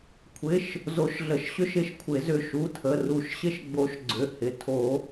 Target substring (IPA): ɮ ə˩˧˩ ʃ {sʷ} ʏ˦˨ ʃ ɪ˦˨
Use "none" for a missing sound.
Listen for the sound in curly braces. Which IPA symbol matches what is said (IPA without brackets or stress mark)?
ɕ